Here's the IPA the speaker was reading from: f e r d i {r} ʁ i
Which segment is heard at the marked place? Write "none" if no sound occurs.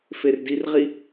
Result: r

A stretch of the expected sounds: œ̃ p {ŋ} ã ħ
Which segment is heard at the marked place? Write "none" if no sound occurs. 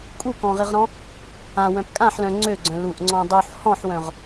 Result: kʼ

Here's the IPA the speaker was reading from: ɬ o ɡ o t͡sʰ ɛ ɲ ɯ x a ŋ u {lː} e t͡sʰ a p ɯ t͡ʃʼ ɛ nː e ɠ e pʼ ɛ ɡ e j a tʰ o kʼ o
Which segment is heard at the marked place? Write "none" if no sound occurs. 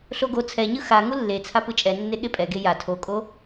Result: lː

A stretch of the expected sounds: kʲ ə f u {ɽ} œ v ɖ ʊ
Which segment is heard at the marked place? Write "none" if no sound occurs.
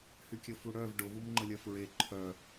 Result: ɽ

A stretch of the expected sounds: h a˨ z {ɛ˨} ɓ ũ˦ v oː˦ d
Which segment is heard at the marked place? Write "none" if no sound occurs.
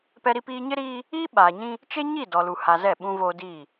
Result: ɛ˦˨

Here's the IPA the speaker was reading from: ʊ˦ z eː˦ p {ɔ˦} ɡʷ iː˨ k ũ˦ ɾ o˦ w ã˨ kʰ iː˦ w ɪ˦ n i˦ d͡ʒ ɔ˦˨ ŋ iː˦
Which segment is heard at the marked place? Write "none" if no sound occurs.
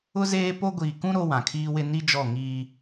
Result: o˦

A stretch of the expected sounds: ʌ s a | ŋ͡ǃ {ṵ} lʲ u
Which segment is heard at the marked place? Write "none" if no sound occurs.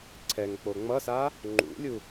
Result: ṵ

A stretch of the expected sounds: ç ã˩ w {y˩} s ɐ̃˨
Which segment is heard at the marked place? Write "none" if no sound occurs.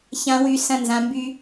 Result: y˩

